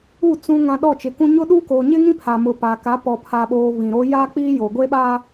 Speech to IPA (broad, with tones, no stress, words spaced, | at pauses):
u˦˨ t͡sũ˨ŋã˨ ɗɔ˦˨t͡ʃɪ˨kũ˦ ɲʊ˦ɗuː˦ ko˨ɲɪ˦ŋĩ˦pʰa˨ mʊ˨pa˨ka˨˦ pɔ˨pʰa˨ɓoː˨ βĩ˨ɾo˦ ja˦k͡pi˦ joː˨ɡʷe˦ɓa˦